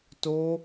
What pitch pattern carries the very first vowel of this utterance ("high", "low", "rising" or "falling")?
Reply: high